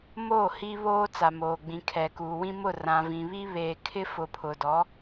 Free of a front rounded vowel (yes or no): yes